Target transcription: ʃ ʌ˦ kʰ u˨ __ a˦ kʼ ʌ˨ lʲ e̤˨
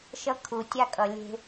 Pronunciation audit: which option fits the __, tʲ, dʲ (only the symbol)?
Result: tʲ